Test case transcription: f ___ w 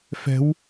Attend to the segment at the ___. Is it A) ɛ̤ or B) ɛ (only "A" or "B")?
A